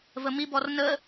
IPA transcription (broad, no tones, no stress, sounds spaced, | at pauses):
v ə m i b ɔ r n ə